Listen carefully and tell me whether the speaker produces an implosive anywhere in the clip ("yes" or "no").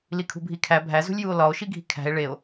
no